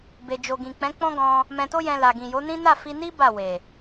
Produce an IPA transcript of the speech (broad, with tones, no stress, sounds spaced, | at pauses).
b e˨ d͡ʒ o˨ ɡ ĩ˨ k͡p ɛ̃˨˦ k͡p ɔ̃˦ ɡ ɔ̃˧ | m ɛ̃˧ t o˦ j ɛ̃˧ l a˨ ɡ ĩ˨ j o˨˦ n ĩ˦ n a˦˨ f i˧ n i˦ b a˦˨ w e˨